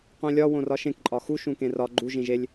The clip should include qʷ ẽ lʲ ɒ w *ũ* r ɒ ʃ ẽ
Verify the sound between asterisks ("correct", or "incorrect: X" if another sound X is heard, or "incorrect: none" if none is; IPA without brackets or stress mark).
incorrect: õ